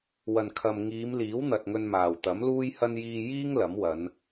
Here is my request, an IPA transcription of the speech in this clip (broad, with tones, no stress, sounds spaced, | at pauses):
w ɐ˨˩ n kʰ ɐ˨ m ŋ iː˨˧ m l iː˨˥ w n̪ ɐ˨ t̚ ŋ ɵ˧ n m aː˨˩ w t̪ ɐ˨˥ m l uː˥ j h ɐ˥ n j iː˧ j iː˥ ŋ l ɐ˨˥ m w ɐ˨˧ n